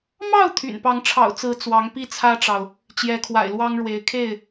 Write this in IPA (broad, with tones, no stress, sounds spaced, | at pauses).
m ɑ˥˨ ʊ̯ t̪ʰ y̰˨˩ n p ɑ˨˦ ŋ ʈ͡ʂʰ ɑ̰˨˩ ʊ̯ t͡s ɹ̩˨˦ t͡s w ɑ˨˦ ŋ p i˦ t͡sʰ ä˦ ʈ͡ʂ ɑ˨ ʊ̯ | t͡ɕ j ɛ˨˦ kʰ w a̰˨˩ ɪ̯ l w ɑ˦ ŋ ɻ w e˨˦ ɪ̯ kʰ e˥˨ ɪ̯